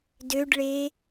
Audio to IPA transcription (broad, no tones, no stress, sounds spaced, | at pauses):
d ø ɖ ɭ e